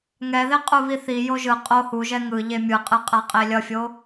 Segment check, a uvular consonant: present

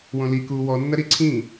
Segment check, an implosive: absent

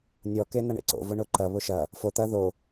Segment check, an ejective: absent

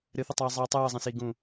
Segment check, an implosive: absent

